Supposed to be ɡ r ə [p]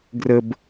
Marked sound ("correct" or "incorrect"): incorrect